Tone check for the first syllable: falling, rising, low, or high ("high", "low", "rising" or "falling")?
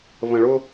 low